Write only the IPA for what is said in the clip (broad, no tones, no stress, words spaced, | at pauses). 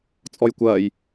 t͡sʼɔjkʷɐːj